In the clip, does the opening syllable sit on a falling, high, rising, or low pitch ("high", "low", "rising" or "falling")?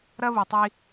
high